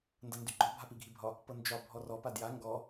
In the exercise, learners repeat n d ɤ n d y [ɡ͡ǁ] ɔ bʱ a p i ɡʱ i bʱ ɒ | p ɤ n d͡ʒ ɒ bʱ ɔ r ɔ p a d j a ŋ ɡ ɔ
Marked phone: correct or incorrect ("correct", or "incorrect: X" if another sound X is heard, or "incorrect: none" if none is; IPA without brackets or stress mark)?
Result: incorrect: ɡ͡ǃ